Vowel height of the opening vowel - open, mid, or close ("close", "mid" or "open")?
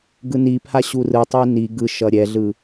close